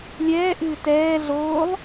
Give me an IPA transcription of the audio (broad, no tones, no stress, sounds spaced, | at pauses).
lʲ ɛː ʔ ɨː t ɛː ɮ oː lˠ